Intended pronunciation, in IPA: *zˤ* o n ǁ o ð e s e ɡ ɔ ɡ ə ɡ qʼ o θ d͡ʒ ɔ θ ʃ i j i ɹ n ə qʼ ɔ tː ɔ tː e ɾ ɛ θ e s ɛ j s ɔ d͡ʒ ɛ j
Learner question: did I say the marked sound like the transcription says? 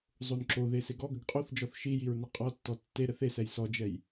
yes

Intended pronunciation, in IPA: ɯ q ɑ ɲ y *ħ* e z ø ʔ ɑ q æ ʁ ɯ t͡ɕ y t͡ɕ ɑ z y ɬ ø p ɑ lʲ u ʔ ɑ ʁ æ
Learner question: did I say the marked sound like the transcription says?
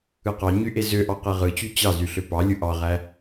no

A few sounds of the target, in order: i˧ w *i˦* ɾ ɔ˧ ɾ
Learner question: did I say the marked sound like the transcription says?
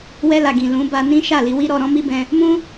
yes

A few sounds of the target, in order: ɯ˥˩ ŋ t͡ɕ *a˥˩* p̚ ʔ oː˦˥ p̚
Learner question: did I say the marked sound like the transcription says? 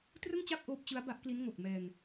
yes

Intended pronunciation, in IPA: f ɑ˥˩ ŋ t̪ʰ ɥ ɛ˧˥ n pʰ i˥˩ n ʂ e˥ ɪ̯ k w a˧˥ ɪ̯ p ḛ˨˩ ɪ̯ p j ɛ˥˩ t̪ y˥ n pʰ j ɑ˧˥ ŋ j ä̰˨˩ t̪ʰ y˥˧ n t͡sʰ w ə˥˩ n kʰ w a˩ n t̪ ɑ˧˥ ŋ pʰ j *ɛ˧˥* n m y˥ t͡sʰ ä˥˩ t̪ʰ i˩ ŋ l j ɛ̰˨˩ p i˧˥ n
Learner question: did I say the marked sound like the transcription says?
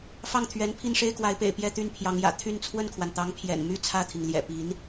no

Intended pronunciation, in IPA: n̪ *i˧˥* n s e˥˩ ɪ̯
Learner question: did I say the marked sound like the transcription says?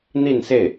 no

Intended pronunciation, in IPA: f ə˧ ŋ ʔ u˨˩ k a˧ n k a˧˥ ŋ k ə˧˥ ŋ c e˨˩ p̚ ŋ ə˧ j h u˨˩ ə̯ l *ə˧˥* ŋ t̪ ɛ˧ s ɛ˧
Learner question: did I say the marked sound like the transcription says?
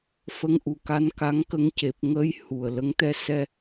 yes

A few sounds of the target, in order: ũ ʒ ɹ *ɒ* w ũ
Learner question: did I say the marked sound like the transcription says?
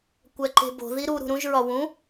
yes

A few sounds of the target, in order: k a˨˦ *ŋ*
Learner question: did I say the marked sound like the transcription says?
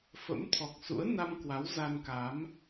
no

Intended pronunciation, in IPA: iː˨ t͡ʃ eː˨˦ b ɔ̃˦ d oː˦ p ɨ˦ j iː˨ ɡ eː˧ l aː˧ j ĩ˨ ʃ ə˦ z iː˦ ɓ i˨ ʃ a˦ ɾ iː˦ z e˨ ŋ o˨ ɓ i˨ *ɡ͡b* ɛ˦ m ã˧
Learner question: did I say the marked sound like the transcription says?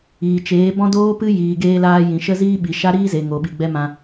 yes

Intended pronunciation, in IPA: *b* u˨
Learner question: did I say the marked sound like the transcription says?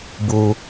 yes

